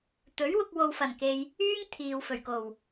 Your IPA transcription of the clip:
t̪ɵ˨˥ɥwʊ˧k̚ wo˨wfɐ˨˩nke˨j | yː˥ŋt̪ʰiː˨wfɵ˨˩ɥko˨˩w

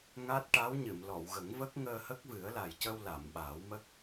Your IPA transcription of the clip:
ŋa˦˥t̚ʈa˧˥w ɲɨ˨˩˨mlɔ˨˩˨wɣə˨˩˦ŋvə˦˥k̚ ŋəː˧hə˦˥k̚vɨ˨˩˦ə̯ la˨˩jcə˧w la˨˩˨mɓaː˨˩˦wmə˦˥k̚

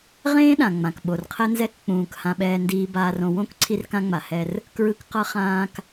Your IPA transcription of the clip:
ʁẽː˦ɗã˨ŋ͡mã˨k ɓo˨rqʰɛ˦nzɛ˦k k͡pũː˨k hã˦ɓɛː˦ndiː˦ baː˦rõ˦ wõ˦k ǀʰi˦rkã˦ŋ͡ma˨ hɛ˦r | kɹɯ˦k qʌ˦χãː˦k

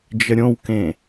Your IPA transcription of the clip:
d͡ʒəɾʲõwkẽ

